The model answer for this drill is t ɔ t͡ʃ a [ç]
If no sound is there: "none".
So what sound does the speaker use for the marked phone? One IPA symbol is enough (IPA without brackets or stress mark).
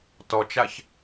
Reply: ç